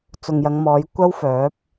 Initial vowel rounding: rounded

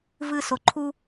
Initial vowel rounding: unrounded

